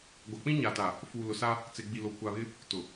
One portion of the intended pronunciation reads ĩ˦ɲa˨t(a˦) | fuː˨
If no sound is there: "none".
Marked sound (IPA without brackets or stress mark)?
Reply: a˨